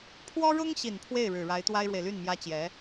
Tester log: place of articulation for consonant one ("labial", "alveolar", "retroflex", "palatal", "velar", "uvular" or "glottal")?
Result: labial